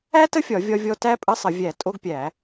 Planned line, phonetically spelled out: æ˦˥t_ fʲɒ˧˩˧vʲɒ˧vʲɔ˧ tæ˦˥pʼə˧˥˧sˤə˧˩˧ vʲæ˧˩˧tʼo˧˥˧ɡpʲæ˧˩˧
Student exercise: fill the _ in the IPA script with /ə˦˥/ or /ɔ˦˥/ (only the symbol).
ə˦˥